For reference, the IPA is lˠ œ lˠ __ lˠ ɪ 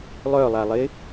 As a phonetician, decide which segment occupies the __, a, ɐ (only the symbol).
a